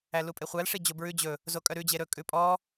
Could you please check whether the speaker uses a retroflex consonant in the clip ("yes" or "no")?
yes